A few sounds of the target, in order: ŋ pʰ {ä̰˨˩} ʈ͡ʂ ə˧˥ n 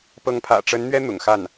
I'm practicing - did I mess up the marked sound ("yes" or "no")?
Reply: no